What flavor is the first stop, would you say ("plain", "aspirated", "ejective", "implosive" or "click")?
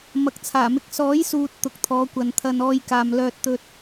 plain